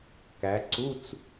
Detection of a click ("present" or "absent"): present